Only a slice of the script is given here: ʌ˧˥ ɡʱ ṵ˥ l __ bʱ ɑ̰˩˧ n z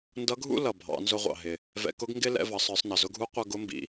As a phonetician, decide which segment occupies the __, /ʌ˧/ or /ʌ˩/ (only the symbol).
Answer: ʌ˩